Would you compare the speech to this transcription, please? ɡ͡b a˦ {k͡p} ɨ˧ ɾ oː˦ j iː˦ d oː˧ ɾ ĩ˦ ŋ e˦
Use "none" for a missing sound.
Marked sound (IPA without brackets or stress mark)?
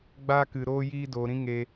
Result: k